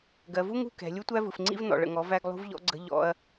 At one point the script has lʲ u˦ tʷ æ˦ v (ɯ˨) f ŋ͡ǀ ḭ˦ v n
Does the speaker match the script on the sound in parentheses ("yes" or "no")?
yes